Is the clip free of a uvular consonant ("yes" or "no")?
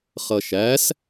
no